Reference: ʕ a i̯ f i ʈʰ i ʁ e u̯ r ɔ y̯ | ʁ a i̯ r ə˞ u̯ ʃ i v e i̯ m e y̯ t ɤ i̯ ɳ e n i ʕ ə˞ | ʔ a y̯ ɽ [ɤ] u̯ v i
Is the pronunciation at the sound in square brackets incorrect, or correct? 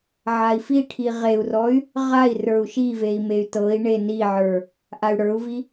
incorrect: ə˞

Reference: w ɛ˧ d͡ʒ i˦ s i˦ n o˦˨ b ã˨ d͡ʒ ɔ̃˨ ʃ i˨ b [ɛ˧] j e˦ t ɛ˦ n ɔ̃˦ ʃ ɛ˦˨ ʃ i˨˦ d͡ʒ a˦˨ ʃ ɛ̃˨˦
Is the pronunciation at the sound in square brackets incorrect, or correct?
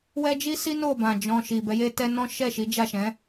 incorrect: ɛ˨˦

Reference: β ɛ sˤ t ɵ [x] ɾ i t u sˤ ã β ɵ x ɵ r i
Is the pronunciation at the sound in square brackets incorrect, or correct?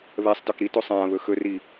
incorrect: k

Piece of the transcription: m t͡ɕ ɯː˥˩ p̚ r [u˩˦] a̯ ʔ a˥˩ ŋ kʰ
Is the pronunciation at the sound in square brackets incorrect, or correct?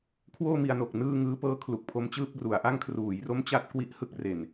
correct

